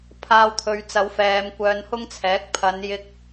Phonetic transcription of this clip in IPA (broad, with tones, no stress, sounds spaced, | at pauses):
pʰ aː˧ w t̪ʰ ɵ˨˧ ɥ t͡s ɐ˨˧ w f ɛː˨˧ m kʷ œː˧ n h ʊ˥ ŋ t͡sʰ ɛː˨˥ k̚ pʰ ɐ˨˧ n j ɪ˧ k̚